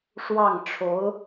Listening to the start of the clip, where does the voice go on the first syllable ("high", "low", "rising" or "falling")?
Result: falling